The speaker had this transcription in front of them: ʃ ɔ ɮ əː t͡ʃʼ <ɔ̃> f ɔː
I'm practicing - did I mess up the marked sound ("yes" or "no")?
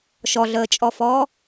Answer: yes